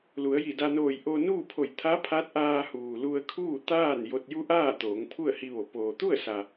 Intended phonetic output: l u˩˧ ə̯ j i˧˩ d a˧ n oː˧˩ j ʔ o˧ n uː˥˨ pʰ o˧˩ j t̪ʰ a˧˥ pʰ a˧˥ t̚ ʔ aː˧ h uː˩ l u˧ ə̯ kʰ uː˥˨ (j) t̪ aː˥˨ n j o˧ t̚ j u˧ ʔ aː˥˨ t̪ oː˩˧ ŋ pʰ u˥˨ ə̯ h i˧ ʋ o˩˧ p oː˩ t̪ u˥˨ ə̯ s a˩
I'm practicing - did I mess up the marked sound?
yes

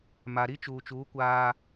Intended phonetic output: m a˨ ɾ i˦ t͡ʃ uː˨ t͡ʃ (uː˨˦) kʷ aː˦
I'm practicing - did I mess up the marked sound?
no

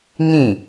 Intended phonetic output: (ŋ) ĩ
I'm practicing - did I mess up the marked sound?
no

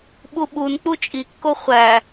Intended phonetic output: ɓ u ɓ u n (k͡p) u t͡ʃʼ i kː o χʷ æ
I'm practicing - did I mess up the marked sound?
no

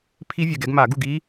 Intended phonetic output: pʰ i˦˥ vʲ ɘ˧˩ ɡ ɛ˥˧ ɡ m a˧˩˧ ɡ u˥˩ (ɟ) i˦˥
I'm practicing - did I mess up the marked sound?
yes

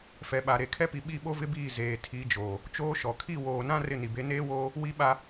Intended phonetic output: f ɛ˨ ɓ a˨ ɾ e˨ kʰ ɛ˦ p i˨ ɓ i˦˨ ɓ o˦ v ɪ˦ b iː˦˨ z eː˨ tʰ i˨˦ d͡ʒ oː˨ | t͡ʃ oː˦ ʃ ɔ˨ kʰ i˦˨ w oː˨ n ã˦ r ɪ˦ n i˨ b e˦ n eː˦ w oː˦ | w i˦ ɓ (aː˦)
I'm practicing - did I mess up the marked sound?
yes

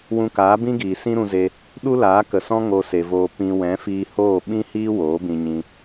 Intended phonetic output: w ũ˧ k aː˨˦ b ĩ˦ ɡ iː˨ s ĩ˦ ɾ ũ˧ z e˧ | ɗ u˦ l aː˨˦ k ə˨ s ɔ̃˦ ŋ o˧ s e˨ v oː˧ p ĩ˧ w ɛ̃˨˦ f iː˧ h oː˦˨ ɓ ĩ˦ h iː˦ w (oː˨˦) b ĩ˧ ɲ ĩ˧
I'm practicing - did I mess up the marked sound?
no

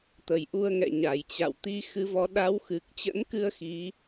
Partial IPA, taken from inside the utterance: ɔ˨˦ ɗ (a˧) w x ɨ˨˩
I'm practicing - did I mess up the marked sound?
yes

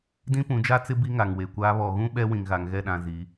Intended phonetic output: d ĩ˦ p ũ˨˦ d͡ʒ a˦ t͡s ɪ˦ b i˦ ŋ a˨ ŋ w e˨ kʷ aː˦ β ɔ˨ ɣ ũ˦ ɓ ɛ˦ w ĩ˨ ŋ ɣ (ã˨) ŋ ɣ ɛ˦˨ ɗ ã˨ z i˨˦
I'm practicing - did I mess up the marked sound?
yes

